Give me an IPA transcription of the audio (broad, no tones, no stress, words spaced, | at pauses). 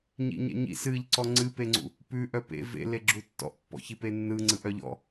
ɲḭɲɛ̰ɲḭs ɨʎ ǀɔŋ͡ǀɨpeŋ͡ǀṵ | pʉ ʔœpḛ vḛleɡ͡ǁu tːɔ̰ʔpːɔ̰çipe nːɯŋ͡ǀɯʔ œʎɔ̰